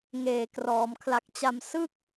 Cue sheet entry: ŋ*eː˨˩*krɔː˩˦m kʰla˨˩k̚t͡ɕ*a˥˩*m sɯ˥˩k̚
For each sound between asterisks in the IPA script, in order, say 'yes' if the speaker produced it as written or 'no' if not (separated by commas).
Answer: yes, no